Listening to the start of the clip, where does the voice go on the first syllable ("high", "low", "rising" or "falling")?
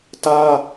high